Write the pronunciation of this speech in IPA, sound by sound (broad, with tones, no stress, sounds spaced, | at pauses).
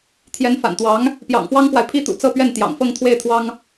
t̪ʰ j ɛ˧˥ n f a̰˨˩ n t̪ w ɑ˧˥ ŋ | p j ɑ̰˨˩ ŋ f w ɑ˥ ŋ k w a˨ ɪ̯ pʰ i˥ t̪ ṵ˨˩ t͡s ɤ˥˧ p ɥ ɛ˥˩ n t̪ j ɑ̰˨˩ ŋ f ɤ˥˧ ŋ t̪ʰ w e˥˩ ɪ̯ t̪ʰ w ɑ˥ ŋ